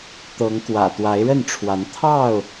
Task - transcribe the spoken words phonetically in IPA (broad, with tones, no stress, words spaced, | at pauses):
t̪ɤ˨˦ŋkwä̰˨˩ t̪wa˨˦ɪ̯ɻə˥˨nʈ͡ʂʰwa˨˦n t̪ʰɑ˥˨ʊ̯